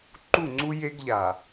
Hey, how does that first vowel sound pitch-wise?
falling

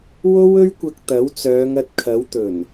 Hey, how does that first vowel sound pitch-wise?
high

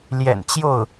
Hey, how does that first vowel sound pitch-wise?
low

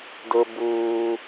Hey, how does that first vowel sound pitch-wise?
high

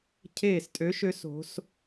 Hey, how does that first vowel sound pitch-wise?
falling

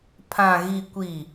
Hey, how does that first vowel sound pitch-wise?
low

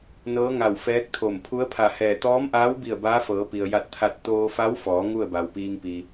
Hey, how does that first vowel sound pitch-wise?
rising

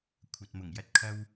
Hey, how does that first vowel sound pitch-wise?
low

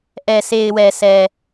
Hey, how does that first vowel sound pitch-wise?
low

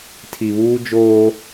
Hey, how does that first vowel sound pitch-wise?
low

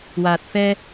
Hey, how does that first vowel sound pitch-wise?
low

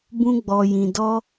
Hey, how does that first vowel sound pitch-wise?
high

